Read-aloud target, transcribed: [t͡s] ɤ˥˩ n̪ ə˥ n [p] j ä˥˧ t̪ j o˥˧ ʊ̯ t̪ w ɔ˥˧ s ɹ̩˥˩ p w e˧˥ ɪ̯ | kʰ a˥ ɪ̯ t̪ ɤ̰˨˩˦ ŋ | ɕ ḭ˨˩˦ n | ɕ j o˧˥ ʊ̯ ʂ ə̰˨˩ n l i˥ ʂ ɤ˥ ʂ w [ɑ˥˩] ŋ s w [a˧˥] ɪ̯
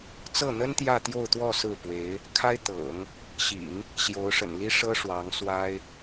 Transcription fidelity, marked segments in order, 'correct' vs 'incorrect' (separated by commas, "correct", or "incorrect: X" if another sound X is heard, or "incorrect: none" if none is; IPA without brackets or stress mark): correct, incorrect: t̪, incorrect: ɑ˧˥, incorrect: a˥